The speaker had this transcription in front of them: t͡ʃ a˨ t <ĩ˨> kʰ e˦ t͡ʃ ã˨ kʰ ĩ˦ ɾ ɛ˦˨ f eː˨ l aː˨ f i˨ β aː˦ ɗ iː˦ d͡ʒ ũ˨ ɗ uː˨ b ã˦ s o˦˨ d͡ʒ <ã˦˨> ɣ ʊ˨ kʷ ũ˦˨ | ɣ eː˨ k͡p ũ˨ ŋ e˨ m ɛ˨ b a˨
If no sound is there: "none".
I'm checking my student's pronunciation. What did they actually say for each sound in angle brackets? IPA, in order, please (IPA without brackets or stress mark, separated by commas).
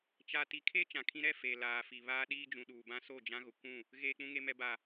i˨, ã˦